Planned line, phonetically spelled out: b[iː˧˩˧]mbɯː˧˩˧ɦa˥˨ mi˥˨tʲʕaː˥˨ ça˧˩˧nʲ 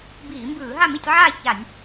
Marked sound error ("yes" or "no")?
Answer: no